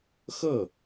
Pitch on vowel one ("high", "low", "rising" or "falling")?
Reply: falling